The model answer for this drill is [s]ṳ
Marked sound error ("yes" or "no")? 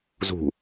yes